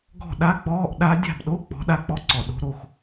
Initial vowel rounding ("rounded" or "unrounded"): rounded